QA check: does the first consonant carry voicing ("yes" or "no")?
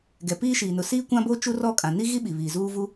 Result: yes